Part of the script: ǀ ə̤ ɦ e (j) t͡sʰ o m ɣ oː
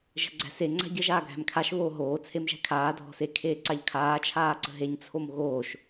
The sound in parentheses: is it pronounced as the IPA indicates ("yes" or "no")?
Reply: no